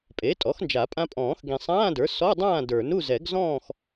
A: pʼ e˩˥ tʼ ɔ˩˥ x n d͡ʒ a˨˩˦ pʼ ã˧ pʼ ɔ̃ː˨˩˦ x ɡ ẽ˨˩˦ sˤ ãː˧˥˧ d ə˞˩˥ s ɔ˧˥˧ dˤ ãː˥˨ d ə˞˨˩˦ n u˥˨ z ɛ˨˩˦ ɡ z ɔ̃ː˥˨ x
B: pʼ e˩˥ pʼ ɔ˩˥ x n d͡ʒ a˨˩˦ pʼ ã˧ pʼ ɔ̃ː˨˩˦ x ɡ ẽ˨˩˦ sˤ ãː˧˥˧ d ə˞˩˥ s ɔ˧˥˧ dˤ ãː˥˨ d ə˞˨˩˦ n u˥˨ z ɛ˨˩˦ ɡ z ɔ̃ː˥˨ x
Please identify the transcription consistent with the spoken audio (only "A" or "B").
A